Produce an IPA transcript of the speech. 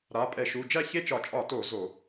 ɾ a˩˧˩ pʼ ɛ˧˩˧ ʃ u˩˧˩ d͡ʒ æ˥˧ ç e˥˧ t͡ʃ ɒ˧˩˧ t͡ʃʼ ɒ˧˩˧ t o˧˩˧ z o˧˩˧

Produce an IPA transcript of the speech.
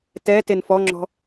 t ɛ t e n f ɔ ŋ͡ǁ ɔ̤

